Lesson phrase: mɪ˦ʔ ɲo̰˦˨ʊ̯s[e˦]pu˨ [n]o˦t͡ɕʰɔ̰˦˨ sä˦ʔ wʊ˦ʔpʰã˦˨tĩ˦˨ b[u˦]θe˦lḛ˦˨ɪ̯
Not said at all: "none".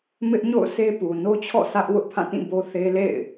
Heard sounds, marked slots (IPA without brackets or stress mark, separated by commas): e˦, n, o˦